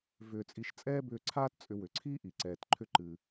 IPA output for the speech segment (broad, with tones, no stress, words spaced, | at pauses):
vʏː˧t͡sʼi˧ʃ t͡sʼɛː˥bʏː˧ǀʰaː˥t t͡sʼʏ˧wʏ˩ǀʰiː˥ʔi˩ ǀɛː˩tǃʰʏ˧ ǃɨ˩